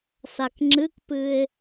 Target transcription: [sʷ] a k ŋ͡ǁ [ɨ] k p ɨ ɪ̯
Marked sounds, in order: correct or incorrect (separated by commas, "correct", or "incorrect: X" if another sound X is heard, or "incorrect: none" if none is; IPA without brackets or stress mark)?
incorrect: s, correct